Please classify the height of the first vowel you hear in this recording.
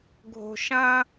mid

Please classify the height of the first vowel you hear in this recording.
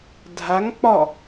low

